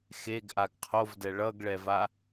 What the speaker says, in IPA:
xeɡʔaɡ qʰovdɛ ɭʌɡɭɛva

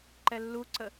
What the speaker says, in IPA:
ǃɛlːuǀə

